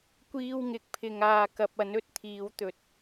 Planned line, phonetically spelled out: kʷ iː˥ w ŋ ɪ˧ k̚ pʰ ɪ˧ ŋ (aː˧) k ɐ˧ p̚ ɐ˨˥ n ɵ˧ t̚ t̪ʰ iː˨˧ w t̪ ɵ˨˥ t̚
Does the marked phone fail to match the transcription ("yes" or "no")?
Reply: no